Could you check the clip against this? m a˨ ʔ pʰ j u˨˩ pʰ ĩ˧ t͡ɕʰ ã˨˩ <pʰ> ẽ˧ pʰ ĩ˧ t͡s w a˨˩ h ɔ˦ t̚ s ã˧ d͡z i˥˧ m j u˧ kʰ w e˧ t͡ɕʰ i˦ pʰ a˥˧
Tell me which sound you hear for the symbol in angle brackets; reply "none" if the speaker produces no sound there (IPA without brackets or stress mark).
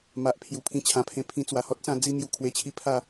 pʰ